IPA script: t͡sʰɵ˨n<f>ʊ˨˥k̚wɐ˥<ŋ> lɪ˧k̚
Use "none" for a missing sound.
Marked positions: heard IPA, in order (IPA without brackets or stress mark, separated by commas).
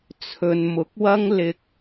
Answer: m, ŋ